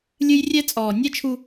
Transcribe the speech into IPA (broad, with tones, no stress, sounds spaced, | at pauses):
lʲ ɨ˦ j rʲ ɛ˦ t͡sʼ ɔː˨ nʲ ɛ˦ t͡ʃʰ u˦